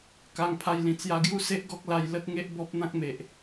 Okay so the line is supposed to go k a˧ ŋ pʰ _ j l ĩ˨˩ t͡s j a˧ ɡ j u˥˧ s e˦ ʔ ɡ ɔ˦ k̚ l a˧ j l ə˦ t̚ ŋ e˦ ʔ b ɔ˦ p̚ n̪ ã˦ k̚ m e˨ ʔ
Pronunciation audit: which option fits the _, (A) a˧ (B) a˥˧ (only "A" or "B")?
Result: A